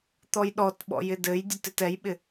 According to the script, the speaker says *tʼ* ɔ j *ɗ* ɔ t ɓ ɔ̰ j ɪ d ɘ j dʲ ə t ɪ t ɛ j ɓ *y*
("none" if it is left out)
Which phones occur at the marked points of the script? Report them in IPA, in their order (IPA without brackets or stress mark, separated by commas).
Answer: t̪, ɗ, ɪ